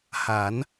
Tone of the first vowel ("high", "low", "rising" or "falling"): rising